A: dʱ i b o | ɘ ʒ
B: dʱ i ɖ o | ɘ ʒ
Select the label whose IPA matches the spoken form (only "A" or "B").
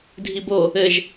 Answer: A